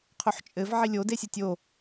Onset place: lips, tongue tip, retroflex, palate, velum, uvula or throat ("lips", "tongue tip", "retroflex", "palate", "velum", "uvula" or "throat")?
uvula